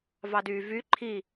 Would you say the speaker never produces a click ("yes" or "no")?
no